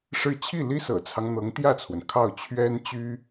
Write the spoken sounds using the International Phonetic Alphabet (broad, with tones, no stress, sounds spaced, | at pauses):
ʂ ɻ̩˥˧ t͡ɕʰ i˥˩ l i˥ s ɤ̰˨˩ t͡sʰ ɑ˦ ŋ n̪ ɤ˧˥ ŋ t̪ j ä˥˩ t͡sʰ w ə˩ n kʰ ɑ˥˩ ʊ̯ t͡ɕʰ ɥ ɛ˥ n t͡ɕ y˥